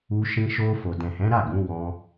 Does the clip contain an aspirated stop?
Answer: no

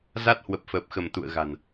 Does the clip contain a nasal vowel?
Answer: no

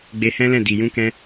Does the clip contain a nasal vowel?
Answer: yes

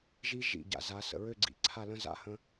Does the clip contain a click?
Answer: yes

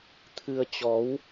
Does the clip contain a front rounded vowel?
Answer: no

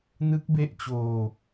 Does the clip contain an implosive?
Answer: no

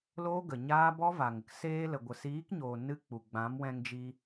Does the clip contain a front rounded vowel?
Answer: no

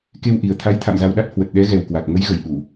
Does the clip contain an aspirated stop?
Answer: yes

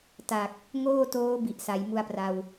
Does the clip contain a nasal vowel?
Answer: no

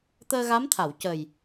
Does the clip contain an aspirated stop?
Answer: yes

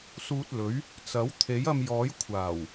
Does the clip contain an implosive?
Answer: no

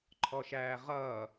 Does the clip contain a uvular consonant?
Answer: yes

